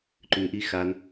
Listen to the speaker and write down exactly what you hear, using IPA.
ǃʉʔi xan

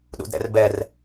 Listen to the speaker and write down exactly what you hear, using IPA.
ɗṵdɾɛ̰rbɛr

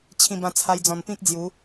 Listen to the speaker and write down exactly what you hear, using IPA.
t͡ɕʰĩ˧bã˧t͡sʰa˧j d͡zɔ̃˨˩npĩ˦k̚d͡zju˨˦

